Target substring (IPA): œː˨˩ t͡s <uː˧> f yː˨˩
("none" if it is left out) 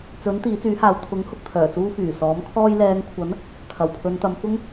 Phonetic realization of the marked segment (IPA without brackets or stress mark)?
uː˧